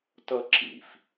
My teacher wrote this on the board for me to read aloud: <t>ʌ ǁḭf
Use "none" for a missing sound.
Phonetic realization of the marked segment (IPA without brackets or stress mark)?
t